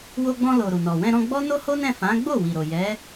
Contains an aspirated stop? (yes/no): no